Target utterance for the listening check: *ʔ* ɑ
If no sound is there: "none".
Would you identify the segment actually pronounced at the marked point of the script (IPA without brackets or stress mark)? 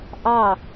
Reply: ʔ